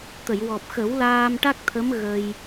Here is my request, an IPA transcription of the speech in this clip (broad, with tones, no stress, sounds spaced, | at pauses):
t̪ ə˨˩˨ j w ɔ˨˩ p̚ x ə˨˩˦ w l aː˧ m ʈ a˦˥ k̚ t̪ʰ ə˧˥ m ɣ ə˧ j